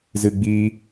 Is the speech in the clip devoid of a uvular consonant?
yes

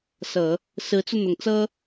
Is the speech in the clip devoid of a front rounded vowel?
yes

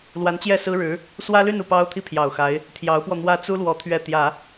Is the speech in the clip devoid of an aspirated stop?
no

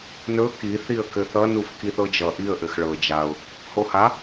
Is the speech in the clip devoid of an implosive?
yes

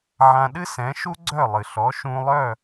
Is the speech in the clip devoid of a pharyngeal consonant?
no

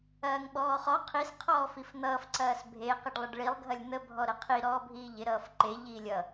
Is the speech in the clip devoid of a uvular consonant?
no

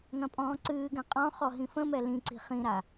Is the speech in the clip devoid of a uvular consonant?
no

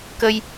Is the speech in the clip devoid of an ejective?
yes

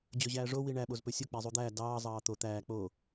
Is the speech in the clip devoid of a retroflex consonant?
no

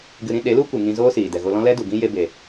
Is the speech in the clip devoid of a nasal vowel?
no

